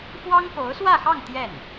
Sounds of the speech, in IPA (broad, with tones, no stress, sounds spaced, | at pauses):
f w ɑ˥ ŋ k o˧˥ ʊ̯ s w ä˥˧ x ɑ˥˧ ŋ t̪ j ɛ˥˩ n